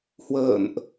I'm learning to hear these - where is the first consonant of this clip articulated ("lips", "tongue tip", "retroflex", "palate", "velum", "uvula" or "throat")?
throat